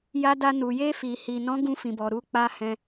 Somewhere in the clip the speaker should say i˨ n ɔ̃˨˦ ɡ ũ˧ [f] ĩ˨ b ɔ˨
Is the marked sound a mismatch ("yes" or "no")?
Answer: no